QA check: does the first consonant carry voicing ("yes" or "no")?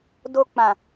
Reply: yes